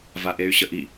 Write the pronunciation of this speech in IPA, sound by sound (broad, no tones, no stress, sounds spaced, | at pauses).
v a ʔ e y̯ ɕ ə ʔ i